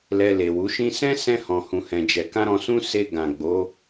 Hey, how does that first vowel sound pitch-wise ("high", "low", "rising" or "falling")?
low